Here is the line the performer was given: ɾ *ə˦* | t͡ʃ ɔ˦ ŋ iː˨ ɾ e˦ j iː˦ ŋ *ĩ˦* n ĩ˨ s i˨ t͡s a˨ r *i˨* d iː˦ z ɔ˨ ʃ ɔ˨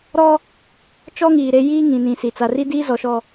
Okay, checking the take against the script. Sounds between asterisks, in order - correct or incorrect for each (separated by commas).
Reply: incorrect, incorrect, incorrect